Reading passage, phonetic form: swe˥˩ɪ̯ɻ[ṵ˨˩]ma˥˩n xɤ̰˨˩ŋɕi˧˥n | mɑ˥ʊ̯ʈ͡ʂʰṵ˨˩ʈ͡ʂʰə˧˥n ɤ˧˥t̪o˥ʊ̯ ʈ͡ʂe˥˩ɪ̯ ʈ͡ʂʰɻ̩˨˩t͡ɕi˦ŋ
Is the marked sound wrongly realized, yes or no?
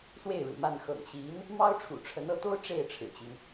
no